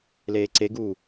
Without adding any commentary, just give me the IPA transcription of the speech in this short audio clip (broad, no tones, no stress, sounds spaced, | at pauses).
l eː ǀ e ɡ uː